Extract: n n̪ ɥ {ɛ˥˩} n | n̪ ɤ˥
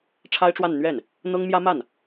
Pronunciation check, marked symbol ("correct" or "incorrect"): correct